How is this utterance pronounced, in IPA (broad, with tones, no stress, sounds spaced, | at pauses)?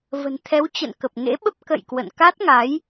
v ə̤˨˩ n t̪ʰ ɛ˨˦ w t͡ɕ ə̰˧˨ n k ə˨˩ p̚ ŋ ḛ˧˥ ɓ ə˦˥ p̚ k ə̰˧˨ j k w ə̰˧˨ n k a˦˥ t̚ ŋ a˨˦ j